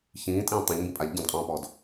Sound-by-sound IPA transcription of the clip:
çĩːtʼĩː tˤɛ̃ʎmbĩ pʼaʎ ɟə̃dqʼɔ̃ːpɔːd

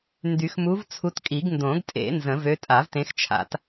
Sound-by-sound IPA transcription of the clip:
ndy˨˩˦xmu˨˦vt͡sʰu˨˦tkʼi˨˩˦ɡ ndõ˨˩˦ɡtʼḛ˨˩˦ nzə̃˨˩˦vø˨˦ tʼa˨˩˦vtẽ˨˦xt͡ʃʰa̰˨˩˦t

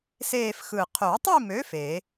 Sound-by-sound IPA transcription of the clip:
seː˥˧fxɯ˧˩ qʰo˨˩˦tˤi˥˧mø˨˥ fe˨˩˦

